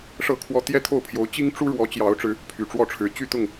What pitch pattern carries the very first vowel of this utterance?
falling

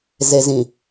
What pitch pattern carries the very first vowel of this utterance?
low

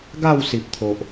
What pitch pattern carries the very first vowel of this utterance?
falling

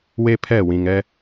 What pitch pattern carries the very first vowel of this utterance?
high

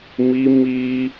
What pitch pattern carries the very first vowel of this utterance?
high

